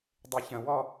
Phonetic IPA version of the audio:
dˤ i ç ə̃ w ɔ

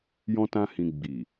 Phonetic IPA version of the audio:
j ɔ̃˦ t ã˦ h ĩ˧ ɡ͡b i˨

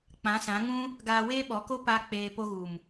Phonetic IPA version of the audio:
k͡p ã˨˦ s ã˨˦ ŋ ũ˦ | ɡ aː˧ w eː˦ ɓ ɔ˨˦ k o˦ p a˦ k͡p eː˧ p o˧ ɣ u˨ m

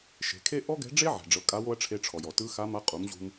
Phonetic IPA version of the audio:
ʃ e̤˩˧ kʰ e˥ ʔ ɔ˥ ɡ ɛ̤˧˥ ɖ͡ʐ e˥ ʕ ɛ̤˩ ɖ͡ʐ ɤ˩˧ kʼ a˧˥ w o˥ ɐ̯ ʈ͡ʂʰ e˧ ʈ͡ʂʰ ɔ˩ j ɔ˩ t ɯ˧˥ x a˧˥ m a˧˥ qʼ u˩˧ m ʑ ṳ˧ m

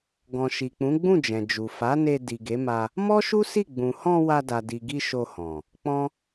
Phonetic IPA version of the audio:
ɡ ɔ̃˨ ʃ i˨ k͡p ũ˨˦ ɡ͡b ũ˦˨ d͡ʒ ɛ̃˨ d͡ʒ u˨ f a˨˦ n e˧ d i˨ ɡ e˨˦ m a˧ | m ɔ˦ ʃ u˦ s i˦˨ ɡ͡b ũ˨ h ɔ̃˧ w a˧ d a˨ d i˨ ɡ i˧ ʃ o˧ h ɔ̃˨ | k͡p ɔ̃˦

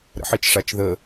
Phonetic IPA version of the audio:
ɾ ə̰ ħ i t͡ʃ ʂ a t͡ʃ ð ə

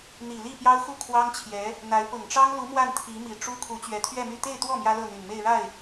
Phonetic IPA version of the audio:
n̪ i˨˩ l i˥˩ p j ɑ˥ ʊ̯ x u˥˩ kʰ w ɑ˥ ŋ t͡ɕʰ j ɛ˧˥ | n̪ a˧˥ ɪ̯ p ʊ˨˩ ŋ ʈ͡ʂ ɑ˥ ŋ l u˧˥ m w a˥˩ n t̪ʰ i˧˥ m i˨˩ ʈ͡ʂ u˥ kʰ u˧˥ t͡ɕ ɥ ɛ˧˥ t̪ʰ ɥ ɛ˥˧ m y˥˧ t̪ e˥˧ ɪ̯ t̪ w ɔ˥˩ m j ä˥ l ɤ˥˩ n̪ y˨˩ n m e˥˧ ɪ̯ ɻ a˥˩ ɪ̯

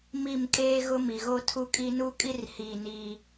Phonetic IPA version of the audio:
m i˦˨ m kʼ eː˦ ɣ ʊ˦ m i˨ ɣ o˦ tʰ u˦ kʼ i˦ n u˦ kʼ i˦ r h i˦˨ n iː˦

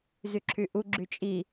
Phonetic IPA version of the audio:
z y ǁʰ y ʔ u ɡ͡ǁ y t͡ʃʼ i

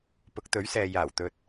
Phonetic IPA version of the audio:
p ʊ˨˥ k̚ t̪ ɵ˨˥ ɥ s ɛː˨ j aː˨˩ w t̪ ɵ˨ t̚

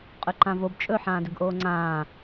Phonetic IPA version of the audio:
qʼ ɵ ǃ ã v o b t͡ʃʼ ɵ ħ ãː d ʏ ɡ ʔ oː ŋ͡ǀ ãː

